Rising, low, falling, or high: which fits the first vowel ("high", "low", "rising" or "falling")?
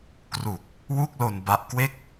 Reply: low